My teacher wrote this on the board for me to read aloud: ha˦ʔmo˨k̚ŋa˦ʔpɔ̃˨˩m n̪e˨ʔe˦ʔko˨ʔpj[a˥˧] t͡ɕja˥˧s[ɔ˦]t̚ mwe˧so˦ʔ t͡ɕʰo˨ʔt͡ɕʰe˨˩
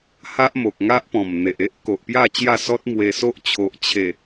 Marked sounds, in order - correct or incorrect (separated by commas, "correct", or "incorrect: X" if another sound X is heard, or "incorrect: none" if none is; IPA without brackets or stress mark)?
correct, correct